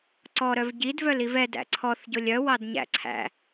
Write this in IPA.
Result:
ǀ ɔ ɾ œ v ɟ i d v œ l i v ɛ d æ̰ ǀʰ ɔ θ ɟ o lʲ œ w ɑ d ɲ æ̰ ǀʰ æ̰

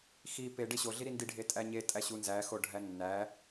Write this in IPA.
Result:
x i p e ɖ e ɕ o ɮ i ɾ i n d i ɖʱ e tʼ æ ɲ e tʼ æ ɕ u n z æ x o ɖʱ æ nː æ

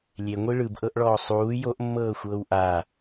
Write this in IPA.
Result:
lʲ e ŋʷ i ɭ ɯ b ʔ ɤ ʔ ɭ ɔː sˤ uː j o ʔ mː ɤː xʷ ɤː w ʔ a

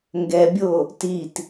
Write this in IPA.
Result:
ŋ ɡ ɛ bʲ o | t i t

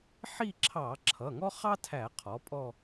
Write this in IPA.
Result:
ħ i˦˨ ǁʰ ɑ˧˩˧ ǁʰ ʌ˩˧˩ ŋ ɔ˥ χ ɑ˥ tʰ æ˧˩˧ qʰ ɔ˩˥ pʼ ɔ˦˨

